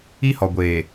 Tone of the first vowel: high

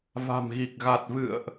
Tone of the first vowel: low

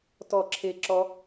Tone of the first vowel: falling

